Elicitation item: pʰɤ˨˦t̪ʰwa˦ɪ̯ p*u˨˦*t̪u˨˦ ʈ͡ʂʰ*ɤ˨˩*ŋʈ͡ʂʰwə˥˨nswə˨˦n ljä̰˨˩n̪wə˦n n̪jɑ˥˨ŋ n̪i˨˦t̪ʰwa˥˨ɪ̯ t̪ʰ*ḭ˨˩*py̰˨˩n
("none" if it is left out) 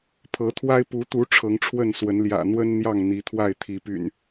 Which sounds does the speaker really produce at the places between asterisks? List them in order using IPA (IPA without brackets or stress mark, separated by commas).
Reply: u˨˦, ɤ˨˦, i˨˦